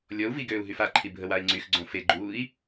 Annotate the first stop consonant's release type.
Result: plain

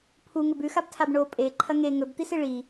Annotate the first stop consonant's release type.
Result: aspirated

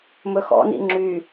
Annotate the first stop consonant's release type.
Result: click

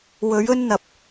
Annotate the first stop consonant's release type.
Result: plain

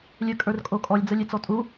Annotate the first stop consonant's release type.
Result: ejective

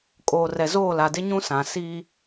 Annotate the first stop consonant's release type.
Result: ejective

